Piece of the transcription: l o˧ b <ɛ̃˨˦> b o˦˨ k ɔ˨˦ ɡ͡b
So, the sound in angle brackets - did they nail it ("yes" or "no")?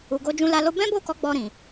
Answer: no